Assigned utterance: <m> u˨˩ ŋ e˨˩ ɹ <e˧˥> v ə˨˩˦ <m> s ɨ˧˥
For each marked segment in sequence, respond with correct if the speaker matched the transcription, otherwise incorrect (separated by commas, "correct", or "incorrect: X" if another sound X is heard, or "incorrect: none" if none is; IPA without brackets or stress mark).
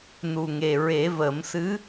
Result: incorrect: n, incorrect: e˨˩˦, correct